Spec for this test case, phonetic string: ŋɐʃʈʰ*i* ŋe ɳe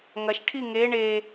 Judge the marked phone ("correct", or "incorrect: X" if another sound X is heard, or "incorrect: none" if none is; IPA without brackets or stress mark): correct